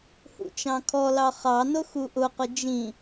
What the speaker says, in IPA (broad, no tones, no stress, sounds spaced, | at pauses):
h ṵ t͡ʃ ɑ̃ kʰ ɔ l ɑ χ ɑ n ʊ x u ʔ ʊ q ʊ d͡ʒ ĩ